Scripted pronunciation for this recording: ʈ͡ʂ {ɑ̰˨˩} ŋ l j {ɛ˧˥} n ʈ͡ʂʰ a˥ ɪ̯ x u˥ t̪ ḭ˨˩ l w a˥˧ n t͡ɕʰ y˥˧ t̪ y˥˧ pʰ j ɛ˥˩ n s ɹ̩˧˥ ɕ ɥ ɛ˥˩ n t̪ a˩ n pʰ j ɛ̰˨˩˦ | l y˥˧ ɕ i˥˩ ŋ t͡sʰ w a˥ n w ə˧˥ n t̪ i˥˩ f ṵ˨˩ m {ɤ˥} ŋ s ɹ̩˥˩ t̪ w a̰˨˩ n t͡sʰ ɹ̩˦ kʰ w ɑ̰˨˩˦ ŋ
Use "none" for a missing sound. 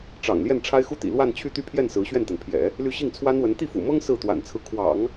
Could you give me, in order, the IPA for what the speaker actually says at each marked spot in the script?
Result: ɑ̰˨˩, ɛ˥˩, ɤ˥

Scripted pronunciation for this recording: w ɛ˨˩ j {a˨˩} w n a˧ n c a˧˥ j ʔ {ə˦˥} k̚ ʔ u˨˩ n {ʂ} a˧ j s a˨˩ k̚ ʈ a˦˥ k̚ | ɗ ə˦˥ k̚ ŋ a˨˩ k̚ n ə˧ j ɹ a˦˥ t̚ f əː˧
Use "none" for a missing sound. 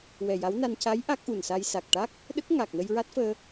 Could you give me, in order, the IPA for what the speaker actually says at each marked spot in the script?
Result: a˧˥, a˦˥, s

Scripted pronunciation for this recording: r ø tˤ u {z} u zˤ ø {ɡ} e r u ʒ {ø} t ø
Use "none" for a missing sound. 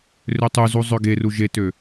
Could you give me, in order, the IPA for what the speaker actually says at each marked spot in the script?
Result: z, ɡ, e

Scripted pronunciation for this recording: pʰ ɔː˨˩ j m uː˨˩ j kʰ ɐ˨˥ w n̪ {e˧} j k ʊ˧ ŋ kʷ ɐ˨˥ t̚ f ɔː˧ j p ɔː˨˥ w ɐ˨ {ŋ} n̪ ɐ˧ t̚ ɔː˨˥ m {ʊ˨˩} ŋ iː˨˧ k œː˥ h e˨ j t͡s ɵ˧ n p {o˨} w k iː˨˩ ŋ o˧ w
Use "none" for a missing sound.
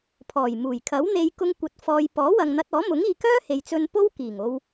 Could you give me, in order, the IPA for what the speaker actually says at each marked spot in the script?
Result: e˧, ŋ, ʊ˨˥, o˥

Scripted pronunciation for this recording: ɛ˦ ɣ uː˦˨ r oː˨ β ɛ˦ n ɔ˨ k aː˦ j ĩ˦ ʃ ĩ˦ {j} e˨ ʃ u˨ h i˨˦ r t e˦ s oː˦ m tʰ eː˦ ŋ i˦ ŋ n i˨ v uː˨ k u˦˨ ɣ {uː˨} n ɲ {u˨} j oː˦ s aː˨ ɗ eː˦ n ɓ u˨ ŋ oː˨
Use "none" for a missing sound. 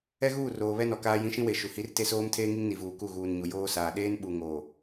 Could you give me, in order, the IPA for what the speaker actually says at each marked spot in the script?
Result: w, uː˨, u˨

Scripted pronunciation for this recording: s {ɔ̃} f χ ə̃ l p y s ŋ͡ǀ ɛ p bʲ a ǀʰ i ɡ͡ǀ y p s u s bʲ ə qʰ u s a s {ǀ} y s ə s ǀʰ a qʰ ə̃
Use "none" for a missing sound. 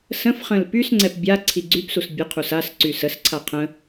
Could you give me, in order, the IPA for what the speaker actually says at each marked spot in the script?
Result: ə̃, ǀ

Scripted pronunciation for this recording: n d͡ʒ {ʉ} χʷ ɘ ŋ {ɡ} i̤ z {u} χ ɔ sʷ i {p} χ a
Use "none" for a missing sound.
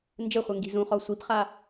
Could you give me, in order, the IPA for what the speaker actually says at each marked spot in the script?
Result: ɘ, ɡ, ũ, p

